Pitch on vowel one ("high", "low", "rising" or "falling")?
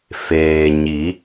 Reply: low